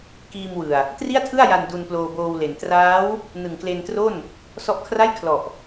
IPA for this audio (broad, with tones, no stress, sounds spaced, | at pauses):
k iː˧ m w ɯ˨˩ a̯ | t r i˥˩ a̯ tʰ ɯ˥˩ a̯ j a˧ n d u˧ n p l oː˧ b oː˧ w l e˩˦ n t r aː˦˥ w | n ɯ˨˩ ŋ k l e˧ n t r o˥˩ n | s ɔ˦˥ ʔ kʰ r a˥˩ j kʰ l ɔ˨˩ ʔ